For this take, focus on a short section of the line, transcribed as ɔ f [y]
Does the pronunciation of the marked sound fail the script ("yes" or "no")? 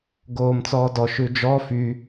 no